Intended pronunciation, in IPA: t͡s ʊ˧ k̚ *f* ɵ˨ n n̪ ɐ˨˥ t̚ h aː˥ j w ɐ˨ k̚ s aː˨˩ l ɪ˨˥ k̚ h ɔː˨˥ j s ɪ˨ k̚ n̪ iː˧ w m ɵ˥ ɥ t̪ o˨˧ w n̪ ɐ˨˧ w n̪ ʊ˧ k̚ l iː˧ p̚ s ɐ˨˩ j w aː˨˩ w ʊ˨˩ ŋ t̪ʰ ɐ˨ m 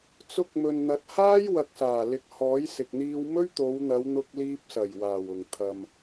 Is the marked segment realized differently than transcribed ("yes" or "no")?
yes